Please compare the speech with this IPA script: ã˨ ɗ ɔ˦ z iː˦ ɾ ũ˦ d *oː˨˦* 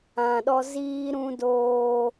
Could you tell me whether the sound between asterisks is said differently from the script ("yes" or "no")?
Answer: yes